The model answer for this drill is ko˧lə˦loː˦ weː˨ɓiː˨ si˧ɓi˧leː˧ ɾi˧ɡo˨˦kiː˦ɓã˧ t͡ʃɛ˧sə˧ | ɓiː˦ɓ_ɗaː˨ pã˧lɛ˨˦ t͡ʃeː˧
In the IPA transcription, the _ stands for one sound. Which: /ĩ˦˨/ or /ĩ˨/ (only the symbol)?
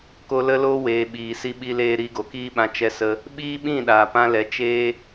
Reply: ĩ˦˨